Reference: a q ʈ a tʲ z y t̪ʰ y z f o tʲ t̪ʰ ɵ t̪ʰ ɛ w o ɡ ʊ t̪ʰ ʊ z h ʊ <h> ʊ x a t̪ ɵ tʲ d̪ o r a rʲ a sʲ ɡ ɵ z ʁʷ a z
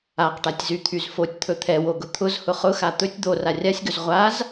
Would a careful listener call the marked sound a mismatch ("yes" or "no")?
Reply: yes